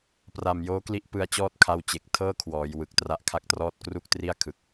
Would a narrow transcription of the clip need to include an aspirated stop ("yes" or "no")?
yes